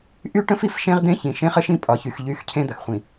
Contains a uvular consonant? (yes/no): yes